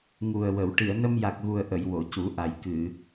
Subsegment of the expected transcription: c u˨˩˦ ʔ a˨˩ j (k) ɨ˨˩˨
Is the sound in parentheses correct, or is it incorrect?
correct